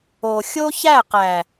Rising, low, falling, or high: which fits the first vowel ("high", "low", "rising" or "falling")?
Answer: low